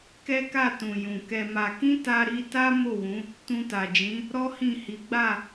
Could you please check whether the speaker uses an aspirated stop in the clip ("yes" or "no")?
no